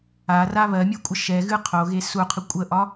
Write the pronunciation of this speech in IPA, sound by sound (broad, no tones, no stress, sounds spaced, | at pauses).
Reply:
a r a β ɜ mʲ ɛ kʷʼ ə ʃ ɛ ɣ ɨ qʰ o ɣ e s u qʰ ɨ kʷʼ ə ʔ ɒ